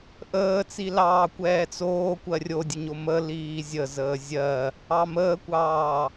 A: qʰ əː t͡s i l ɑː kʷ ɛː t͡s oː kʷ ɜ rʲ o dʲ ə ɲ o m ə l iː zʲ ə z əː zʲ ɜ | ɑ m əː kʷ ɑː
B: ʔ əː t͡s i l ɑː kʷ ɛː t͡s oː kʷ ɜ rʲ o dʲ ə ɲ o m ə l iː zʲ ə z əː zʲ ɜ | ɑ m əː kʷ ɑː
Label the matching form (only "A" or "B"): B